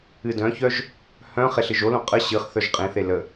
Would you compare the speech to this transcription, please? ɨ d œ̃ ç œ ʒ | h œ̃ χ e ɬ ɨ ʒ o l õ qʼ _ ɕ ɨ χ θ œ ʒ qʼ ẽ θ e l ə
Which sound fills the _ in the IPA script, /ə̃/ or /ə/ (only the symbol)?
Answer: ə